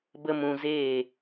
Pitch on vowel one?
high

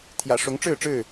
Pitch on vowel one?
low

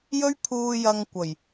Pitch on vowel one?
high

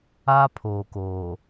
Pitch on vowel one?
high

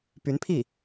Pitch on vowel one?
rising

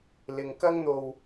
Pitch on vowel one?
low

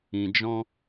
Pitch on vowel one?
low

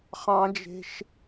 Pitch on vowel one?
high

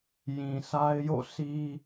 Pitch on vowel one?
low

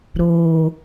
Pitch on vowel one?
low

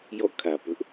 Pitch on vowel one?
falling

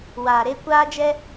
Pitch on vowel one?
low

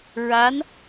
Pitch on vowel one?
rising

